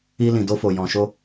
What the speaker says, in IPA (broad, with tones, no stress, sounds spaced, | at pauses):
i˧ l ĩ˨ d o˧ f o˨ j ɔ̃˨ ʃ o˧